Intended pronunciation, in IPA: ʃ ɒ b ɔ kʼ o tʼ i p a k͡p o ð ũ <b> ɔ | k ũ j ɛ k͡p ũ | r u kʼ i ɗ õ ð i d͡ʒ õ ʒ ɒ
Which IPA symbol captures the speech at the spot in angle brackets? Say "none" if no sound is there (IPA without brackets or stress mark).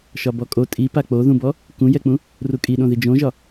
b